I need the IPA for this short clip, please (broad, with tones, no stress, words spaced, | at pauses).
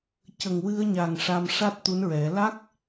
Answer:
cə˨˩ŋwɨ˧ə̯ɲa˨˩ŋ ʂa˧m ʂa˦˥t̚t̪u˧˥nɹɛ˨˩˦ la˦˥k̚